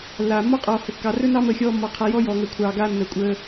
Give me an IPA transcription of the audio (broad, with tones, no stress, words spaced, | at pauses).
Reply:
lːaː˨ mːɔ˦qʼɔː˨hə˨kːɑ˨ rɵ˦nɑ˦ məː˦xʲɔː˦mːɔ˧ qʰa˧jɔː˦jɔː˨ŋəː˨ kʷʰɑː˨ɡaː˧ nːəː˨kʷʼəː˧